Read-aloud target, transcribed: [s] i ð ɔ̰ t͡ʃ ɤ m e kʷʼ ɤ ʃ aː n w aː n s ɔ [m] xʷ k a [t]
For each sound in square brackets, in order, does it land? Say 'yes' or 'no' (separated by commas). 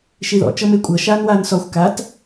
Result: no, no, yes